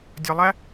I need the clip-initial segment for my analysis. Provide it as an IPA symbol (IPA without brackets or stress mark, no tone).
dʲ